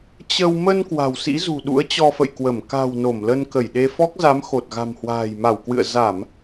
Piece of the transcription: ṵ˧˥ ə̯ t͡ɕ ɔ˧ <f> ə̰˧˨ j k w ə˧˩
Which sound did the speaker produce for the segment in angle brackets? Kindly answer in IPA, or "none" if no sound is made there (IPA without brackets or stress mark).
f